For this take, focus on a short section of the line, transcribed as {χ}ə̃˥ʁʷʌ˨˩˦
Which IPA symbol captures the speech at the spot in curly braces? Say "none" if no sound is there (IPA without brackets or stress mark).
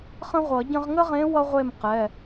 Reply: χ